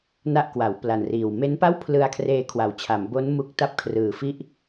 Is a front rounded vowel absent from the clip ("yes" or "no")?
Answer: yes